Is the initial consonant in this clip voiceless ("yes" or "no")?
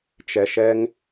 yes